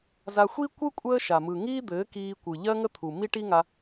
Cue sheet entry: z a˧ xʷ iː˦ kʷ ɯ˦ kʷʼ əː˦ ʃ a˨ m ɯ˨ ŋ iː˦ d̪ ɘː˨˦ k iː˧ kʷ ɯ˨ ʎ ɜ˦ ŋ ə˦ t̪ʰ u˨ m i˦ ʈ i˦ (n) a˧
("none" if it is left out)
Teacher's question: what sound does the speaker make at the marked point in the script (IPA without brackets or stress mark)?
ŋ